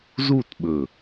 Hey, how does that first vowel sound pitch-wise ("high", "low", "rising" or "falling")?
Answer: falling